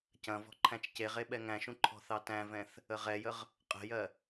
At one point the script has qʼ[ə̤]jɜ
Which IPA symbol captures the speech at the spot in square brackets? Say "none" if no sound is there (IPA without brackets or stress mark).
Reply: ə̤